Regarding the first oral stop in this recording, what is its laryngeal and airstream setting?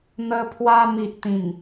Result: aspirated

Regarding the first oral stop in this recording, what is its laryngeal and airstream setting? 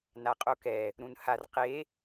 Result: ejective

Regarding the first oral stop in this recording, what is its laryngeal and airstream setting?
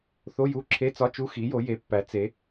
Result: click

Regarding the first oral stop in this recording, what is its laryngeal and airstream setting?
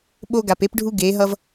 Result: implosive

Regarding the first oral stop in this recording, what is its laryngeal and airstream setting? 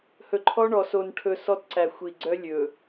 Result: click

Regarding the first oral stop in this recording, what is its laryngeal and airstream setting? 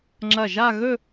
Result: click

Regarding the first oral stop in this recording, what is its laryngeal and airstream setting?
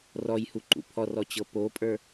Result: click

